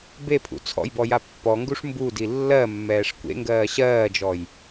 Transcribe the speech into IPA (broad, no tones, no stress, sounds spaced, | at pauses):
b e pʰ ṵ t͡sʰ ɔ̰ j b ɔ j a pː ɔ ŋ ɡ u ʂ m b u d i lː ɜ mː ɛː ʂ kʷ ḛ ŋ ɡ ɜː ɕ ɜː d͡ʒ ɔ j